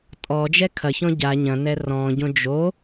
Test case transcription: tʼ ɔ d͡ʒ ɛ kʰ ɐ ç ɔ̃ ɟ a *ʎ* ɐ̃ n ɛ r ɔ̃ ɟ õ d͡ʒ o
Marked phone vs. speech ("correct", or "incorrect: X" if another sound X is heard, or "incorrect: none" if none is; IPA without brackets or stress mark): incorrect: ɲ